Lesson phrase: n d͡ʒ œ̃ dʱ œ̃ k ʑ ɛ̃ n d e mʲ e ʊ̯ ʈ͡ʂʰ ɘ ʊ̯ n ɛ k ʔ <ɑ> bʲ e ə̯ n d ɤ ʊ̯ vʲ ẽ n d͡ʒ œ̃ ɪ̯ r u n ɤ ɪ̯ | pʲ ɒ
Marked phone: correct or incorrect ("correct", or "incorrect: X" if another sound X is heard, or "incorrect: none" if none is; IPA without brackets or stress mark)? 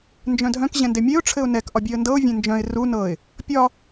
incorrect: ɒ